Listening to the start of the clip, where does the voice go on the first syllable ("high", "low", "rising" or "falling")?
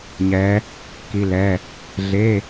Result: rising